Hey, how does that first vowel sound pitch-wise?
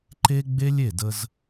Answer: high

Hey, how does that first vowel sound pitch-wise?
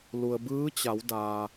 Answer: low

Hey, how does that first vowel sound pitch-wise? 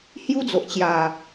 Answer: high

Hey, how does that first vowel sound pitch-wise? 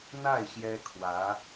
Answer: falling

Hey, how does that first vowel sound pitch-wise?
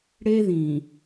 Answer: high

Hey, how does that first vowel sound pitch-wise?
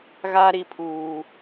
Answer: high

